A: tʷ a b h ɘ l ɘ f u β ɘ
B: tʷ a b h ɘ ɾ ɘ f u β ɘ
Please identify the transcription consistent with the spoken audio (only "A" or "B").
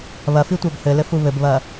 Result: A